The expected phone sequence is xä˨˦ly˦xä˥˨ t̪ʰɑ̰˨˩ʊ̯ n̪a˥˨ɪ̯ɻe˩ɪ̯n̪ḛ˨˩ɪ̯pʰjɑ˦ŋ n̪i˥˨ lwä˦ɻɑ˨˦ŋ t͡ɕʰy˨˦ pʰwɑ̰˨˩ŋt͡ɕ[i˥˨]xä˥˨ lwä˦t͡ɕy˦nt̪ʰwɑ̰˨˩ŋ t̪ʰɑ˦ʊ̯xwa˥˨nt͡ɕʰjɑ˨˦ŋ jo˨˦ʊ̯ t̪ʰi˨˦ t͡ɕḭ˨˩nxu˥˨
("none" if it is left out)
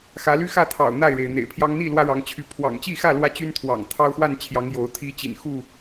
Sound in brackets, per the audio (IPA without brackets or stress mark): i˥˨